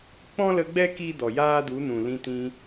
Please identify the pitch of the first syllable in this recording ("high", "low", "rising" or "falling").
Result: high